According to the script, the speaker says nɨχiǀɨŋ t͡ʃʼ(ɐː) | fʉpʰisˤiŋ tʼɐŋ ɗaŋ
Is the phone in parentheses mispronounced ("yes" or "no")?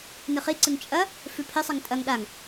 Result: yes